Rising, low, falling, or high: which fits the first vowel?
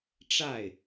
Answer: falling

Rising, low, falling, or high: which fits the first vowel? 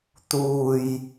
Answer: low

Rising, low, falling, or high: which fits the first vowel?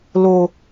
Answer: low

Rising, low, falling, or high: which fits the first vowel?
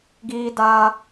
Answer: high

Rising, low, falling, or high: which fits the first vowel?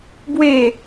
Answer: falling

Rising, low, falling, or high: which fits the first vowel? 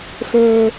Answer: low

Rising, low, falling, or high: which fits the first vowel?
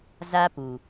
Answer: high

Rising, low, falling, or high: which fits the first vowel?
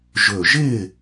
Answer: low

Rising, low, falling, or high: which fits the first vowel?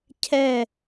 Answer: falling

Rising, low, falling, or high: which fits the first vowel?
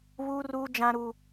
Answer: high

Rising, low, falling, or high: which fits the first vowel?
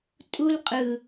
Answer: high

